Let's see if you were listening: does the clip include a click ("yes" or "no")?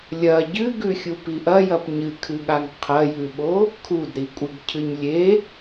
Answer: no